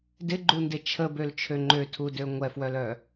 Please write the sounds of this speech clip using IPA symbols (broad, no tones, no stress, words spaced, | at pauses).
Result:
dɪɡ͡ǃundɪ t͡ʃʰəbølt͡ʃʰø ŋ͡ǃøtʰudø ŋʷɛfwœlœ